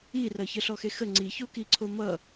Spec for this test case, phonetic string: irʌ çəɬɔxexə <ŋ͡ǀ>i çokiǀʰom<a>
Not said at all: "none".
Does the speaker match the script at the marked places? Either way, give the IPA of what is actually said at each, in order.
ŋ͡ǀ, ʌ

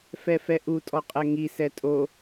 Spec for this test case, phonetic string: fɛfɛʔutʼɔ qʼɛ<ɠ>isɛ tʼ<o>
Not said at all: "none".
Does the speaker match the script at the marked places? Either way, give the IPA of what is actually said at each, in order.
ŋ, o

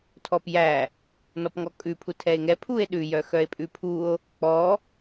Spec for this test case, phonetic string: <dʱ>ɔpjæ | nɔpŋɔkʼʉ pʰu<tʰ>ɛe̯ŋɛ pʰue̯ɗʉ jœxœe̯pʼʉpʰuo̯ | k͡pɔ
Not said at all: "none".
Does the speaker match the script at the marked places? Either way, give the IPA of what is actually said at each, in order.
tʰ, tʰ

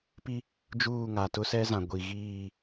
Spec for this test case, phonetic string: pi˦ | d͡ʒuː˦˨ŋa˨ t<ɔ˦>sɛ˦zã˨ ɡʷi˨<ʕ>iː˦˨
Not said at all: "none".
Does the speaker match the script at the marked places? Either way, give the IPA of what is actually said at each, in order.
ʊ˦, ɣ

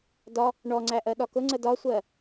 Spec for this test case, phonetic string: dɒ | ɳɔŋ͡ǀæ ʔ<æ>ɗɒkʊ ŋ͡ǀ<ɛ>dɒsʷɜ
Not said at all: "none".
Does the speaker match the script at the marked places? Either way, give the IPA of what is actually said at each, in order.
ɜ, ə

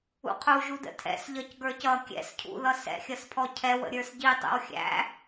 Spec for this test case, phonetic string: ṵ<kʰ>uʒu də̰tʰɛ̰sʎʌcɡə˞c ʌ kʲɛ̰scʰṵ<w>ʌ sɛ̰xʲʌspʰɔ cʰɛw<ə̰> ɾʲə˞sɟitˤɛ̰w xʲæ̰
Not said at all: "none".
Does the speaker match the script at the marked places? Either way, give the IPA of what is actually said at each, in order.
qʰ, ð, ə̰

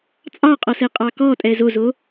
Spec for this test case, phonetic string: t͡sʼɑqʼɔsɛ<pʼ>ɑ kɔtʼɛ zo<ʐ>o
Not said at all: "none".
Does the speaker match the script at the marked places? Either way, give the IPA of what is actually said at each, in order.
qʼ, z

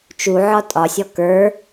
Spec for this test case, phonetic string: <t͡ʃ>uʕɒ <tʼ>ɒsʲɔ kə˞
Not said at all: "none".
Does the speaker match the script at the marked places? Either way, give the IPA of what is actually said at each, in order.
t͡ʃ, tʼ

